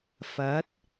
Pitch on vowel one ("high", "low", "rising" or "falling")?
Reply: rising